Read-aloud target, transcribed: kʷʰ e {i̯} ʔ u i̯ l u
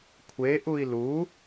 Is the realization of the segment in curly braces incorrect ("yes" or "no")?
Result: yes